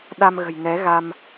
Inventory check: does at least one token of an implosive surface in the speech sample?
yes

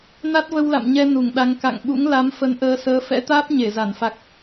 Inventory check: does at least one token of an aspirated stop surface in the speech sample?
no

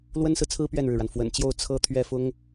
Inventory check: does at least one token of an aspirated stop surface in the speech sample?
yes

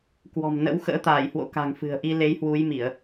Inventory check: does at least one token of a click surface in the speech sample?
no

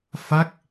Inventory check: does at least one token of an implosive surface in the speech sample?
no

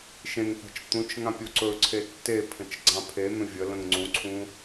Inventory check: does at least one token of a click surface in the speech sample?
yes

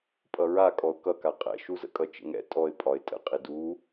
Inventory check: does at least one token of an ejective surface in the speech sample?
yes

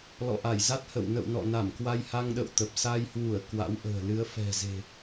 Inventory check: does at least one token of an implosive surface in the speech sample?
yes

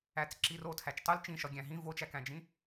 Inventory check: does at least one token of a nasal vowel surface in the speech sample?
yes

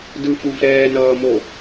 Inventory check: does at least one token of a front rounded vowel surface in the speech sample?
no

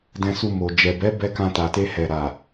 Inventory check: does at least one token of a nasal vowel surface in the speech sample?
yes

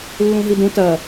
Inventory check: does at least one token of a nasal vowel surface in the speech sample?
yes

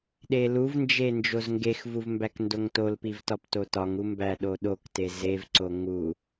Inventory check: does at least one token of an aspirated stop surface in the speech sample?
no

